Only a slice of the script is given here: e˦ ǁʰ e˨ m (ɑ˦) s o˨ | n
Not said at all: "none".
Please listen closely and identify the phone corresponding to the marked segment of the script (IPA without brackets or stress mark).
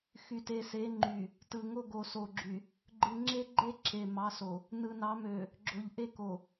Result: ɑ˨˦